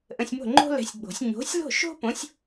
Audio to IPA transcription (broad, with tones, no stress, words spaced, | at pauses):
ʔə̃˧sʲmo̤˥˨ŋ͡ǃo̤˥lɛ̤˨˥sʲ ɡ͡bo̤˨˩˦sʲ ɲo̤˨˥sʲlo̤˥˨ʃo̤˥põ˨˥sʲ